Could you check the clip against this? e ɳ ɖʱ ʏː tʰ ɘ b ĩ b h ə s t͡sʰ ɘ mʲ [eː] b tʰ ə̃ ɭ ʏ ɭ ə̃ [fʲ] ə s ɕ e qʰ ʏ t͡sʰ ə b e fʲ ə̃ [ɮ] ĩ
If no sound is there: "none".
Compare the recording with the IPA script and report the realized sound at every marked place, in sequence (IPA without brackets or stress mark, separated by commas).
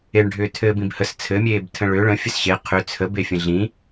eː, fʲ, ɮ